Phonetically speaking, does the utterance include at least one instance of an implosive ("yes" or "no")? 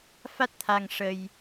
no